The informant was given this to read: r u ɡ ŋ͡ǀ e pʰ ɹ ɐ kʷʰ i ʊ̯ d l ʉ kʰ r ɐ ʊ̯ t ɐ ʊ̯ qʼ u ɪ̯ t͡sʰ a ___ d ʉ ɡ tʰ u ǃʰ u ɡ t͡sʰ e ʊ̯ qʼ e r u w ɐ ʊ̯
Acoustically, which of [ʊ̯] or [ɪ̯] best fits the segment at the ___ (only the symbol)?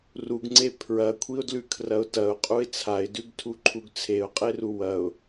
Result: ɪ̯